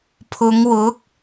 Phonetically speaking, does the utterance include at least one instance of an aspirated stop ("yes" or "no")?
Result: yes